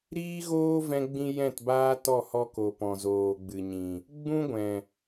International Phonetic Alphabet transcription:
ɾiː˦ɣoː˦vɛ̃˧ ɡ͡bĩ˦jɛ̃˦˨tbaː˦tɔ˦˨ hɔ˧ko˨ pɔ̃˨zoː˨ɡ͡bɨ˨ɲĩ˨ | ɡ͡bũ˦ɡʷɛ̃˨

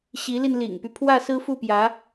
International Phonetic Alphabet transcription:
ɕi˧˥li˧nlḭ˨˩ŋpy˦ pʰwä˥˩sɹ̩˥fu˥˩pjä˧˥

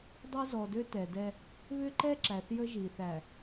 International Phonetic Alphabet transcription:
dˤɛ˦zɔ˨dø˦ tɛ˨dɛ˦ | βʏ˦ǃɛ˦ ǁæ˨θjə˦ʒi˨ θæ˨

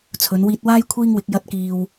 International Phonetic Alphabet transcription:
t͡sʰɵ˨˥n wiː˧t̚waː˥j kʷʰiː˥ŋwɪ˨˥k̚ jɐ˥t̚kiː˧w

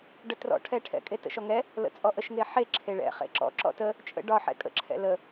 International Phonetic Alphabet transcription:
ɖətrɔ̰ʈʰɛʈʰɛ̰ kʼetə̰ʃɔŋɛ | lə̰t͡sʼɔʔəʃŋe ħe ǁʰeɭɛ̰ χḛǁɔ̰ ǁɔ̰tə | t͡ʃʼə̰ ɖɒħɛ̰ kʼə̰ǁʰɛ̰ lə

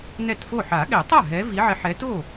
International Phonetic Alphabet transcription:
nɛ˥˩tfo˥˩ ħa˨˩˦ɠɛ˨˩˦tˤa˥˩ ɦɛ˨˦vi˨˦ʕɪ˨˦ ħɛ˨˦to˥˩

